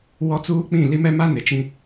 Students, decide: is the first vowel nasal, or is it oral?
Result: oral